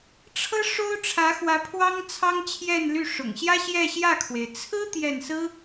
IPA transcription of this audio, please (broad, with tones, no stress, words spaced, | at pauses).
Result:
ʈ͡ʂʰɤ˥ ʂo˥ʊ̯ʈ͡ʂʰä˧˥xwä˧˥ pʰwɑ˥ŋt͡sʰɑ˥ŋ t͡ɕʰjɛ˥˧nly˥˩ʂʊ̰˨˩ŋ ɕjä˥ɕjɛ˥˧ɕjä˥˩kʰwe˩ɪ̯ t͡sʰɹ̩˥ t̪jɛ˥˩n sɹ̩˥